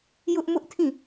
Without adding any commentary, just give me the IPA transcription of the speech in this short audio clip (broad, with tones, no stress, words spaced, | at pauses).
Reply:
jʊ˦ʔmʊ˦ʔtʰĩ˦˨